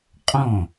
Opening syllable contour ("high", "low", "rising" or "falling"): falling